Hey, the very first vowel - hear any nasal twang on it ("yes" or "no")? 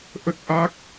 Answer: no